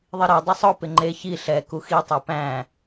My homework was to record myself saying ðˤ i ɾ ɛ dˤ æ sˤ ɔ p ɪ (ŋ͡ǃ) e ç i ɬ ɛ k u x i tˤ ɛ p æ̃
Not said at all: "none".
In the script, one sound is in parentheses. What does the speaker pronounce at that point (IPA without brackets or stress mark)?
ŋ͡ǃ